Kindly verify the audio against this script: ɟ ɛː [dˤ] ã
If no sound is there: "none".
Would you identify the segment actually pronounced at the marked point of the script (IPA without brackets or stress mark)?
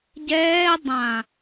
dˤ